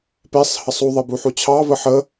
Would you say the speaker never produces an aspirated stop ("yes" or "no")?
no